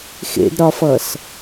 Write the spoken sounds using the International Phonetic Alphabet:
xḛdɾɒfʌs

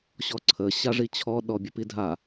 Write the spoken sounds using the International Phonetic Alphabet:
ɕɔǀʰəɕa ʐit͡ɕʰɔɗɔ bʲəpidʱa

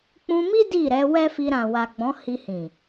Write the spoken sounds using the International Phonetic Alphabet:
k͡pũ˧mi˦ di˦˨ɾɛ˨˦ wɛ˦fi˧ ɾã˨wa˨ɡ͡bɔ̃˨˦ hi˧hĩ˨

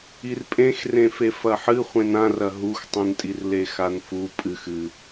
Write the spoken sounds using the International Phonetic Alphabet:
irpʼẽxrẽfe fɐħɨ χʷẽnãrɐ ɦuxtˤũntʼirle xanfu pʼɨx ɨ

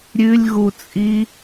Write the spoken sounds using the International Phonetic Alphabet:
ɾʲʉlʲɣut͡sʼi

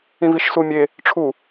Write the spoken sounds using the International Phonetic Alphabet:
ĩviʃsumʲe | ʈ͡ʂʰu

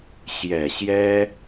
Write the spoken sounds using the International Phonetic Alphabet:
ɕjɛ˨˩ɕjɛ˥

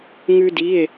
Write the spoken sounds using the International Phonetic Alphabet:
ŋʉ˥di˧˥˧e̯

